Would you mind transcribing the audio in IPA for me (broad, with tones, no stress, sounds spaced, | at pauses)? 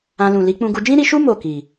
ã˧ l ũ˨ l i˨˦ k͡p ũ˧ ɡ u˧ d͡ʒ ĩ˦ ɾ i˧ ʃ u˦ m o˦˨ k i˨